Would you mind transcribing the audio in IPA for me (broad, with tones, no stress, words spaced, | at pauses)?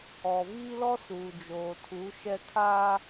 ɔ˨ viː˦lɔ˦ suː˨d͡ʒoː˨tʰu˨˦ ʃɛ˦kʰa˦